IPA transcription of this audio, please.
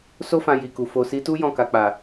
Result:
s o˦ f ã˧ j i˨ k u˨ f o˨ s i˨˦ t u˦ j ɔ̃˦˨ k a˨ k͡p a˨

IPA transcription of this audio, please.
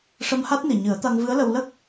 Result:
ʂ ə˧ m h a˦˥ t̚ n i˨˩ ɲ ɨ˨˩˦ ə̯ t̪ a˧ ŋ v ɨ˧˥ ə̯ l ə˧ w l ə˦˥ k̚

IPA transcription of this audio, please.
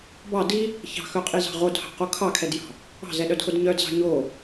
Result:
b ɑ d i | ç ɑ̤ x œ qʼ i z ɑ̤ ʁ o d h ɑ̤ q o kʰ ɑ kʰ ɛ d j ɑ̤ | ɑ̤ z ɛ ɗ œ d x o d ɲ œ d z ɑ̤ ɲ o

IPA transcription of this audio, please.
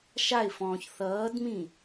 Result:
ʃ a ɪ̯ f ɔ̃ː ç θ ʌː d m ĩ

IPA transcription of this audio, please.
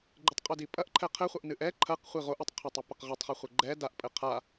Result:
ɡ͡ǃ ɨ tˤ qʼ u d i pʼ ɐ ʔ ǃʰ ɛ qʰ ɘ χʷ ɐ ʔ n ɨ ʔ ɛ ǃʰ ɐ q χʷ i ʁ o ʔ u tˤ qʰ a tˤ ɨ p ɘ q ʁ i tˤ χ i χʷ ɘ ɡ͡ǃ ɛ d a ʔ pʼ ɘ qʰ a

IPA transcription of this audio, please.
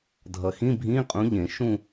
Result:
dʱ ʌ˨ x ĩ˧˥˧ bʱ ĩ˧˥˧ qʼ ũ˧˥ ʎ ẽ˨˩˦ ʃ ũ˥˧

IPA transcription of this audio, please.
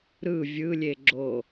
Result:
ɾ ɯ vʲ ɯ lʲ e ɡ͡ǁ o

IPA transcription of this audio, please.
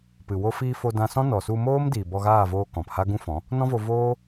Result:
p ɨ˨ w o˧ f iː˧ f o˧ d ã˧ s ɔ̃˦ n ɔ˨ s u˧ m oː˦ m d iː˨ b ɔ˧ ɣ aː˦˨ v oː˧ k ɔ̃˨ p h a˦ ɡ ũ˦ f ɔ̃˨˦ | n ɔ̃˦ v o˧ v oː˦

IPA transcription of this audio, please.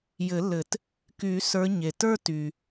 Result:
j ɘ˨˩˦ lː ɘ˨˩˦ t | k y˨˩˦ s ə˞˨˦ ɲ e˩ t ə˞˦ t y˩

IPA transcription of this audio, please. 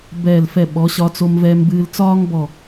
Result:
b ɛː˧˩ l f ɛ˧˩ ɓ ɔ˩˧ ɕ ɒ˧ t͡s o˧ m v ɛː˧ m b ɨː˧ l t͡s ɒː˥ ŋ b ɔ˧˩

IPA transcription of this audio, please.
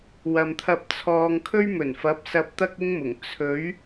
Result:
w ɐ˨ m t̪ʰ ɐ˧ p̚ t͡sʰ ɔː˧ ŋ kʰ ɵ˥ ɥ m ɵ˨˩ n f ɐ˨˥ p̚ s ɐ˧ p̚ t̪ ɐ˥ k̚ ɪ˥ ŋ m ʊ˨˩ ŋ t͡sʰ ɵ˨˥ ɥ

